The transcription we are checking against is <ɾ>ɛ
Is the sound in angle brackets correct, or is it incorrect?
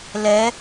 incorrect: l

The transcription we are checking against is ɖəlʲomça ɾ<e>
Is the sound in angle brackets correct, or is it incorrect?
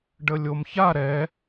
incorrect: ɛ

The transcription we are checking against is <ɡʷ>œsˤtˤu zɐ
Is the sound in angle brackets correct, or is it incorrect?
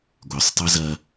correct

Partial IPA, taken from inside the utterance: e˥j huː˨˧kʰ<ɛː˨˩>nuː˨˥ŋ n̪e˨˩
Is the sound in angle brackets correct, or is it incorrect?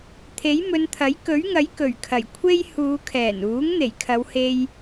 correct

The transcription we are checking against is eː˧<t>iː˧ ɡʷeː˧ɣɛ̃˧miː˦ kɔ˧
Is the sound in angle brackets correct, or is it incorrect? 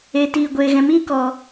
correct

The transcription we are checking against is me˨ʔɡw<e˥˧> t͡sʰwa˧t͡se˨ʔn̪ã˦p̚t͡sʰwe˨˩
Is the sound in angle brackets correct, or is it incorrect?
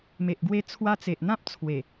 incorrect: e˧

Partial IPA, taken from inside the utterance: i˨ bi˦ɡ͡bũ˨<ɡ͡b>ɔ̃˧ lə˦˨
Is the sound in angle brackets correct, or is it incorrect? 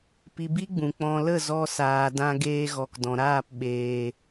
incorrect: k͡p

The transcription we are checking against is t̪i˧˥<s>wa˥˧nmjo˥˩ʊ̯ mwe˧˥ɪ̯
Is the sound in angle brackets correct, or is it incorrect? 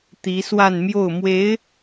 correct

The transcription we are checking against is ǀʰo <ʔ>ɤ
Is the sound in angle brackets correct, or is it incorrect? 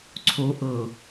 correct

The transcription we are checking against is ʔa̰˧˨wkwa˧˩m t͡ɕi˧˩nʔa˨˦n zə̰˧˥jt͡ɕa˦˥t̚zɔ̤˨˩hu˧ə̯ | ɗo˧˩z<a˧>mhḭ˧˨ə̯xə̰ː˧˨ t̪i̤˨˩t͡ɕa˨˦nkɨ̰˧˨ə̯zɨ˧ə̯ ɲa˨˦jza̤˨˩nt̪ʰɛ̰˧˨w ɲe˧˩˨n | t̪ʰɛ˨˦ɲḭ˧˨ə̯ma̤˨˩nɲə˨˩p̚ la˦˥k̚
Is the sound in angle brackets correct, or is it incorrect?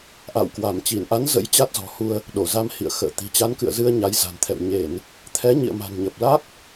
correct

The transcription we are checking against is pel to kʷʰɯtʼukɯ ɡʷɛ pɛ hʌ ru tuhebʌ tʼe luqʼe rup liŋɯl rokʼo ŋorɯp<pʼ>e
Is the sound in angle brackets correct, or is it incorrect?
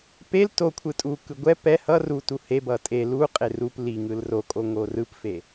incorrect: f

